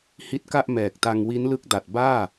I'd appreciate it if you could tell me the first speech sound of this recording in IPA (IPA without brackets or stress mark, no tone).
h